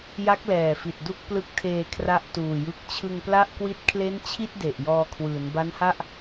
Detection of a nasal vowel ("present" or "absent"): absent